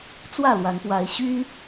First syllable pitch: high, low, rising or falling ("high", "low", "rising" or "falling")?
falling